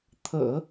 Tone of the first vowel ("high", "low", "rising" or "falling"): low